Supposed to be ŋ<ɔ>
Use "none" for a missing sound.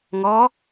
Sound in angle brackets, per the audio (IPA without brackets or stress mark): ɔ